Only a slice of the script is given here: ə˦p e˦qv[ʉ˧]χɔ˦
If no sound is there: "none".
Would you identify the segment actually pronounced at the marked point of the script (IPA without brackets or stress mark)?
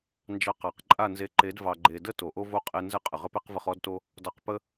ə˧